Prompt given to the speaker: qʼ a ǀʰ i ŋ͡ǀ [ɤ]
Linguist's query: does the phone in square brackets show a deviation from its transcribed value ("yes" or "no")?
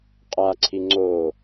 yes